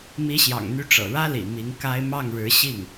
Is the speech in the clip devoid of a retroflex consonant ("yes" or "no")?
no